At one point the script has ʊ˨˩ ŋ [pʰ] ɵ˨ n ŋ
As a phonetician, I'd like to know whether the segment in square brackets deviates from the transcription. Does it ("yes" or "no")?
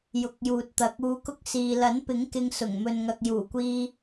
yes